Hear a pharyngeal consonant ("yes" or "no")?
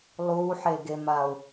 yes